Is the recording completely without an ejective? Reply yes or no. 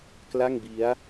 yes